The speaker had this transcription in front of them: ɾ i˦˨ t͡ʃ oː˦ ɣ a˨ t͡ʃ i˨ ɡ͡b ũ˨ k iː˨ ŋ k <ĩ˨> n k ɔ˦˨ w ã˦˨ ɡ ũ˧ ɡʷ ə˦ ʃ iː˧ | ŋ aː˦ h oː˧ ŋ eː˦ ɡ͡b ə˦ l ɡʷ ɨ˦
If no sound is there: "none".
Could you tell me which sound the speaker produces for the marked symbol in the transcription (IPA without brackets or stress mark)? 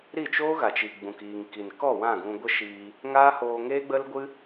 i˨